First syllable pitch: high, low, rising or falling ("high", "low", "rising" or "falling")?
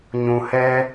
low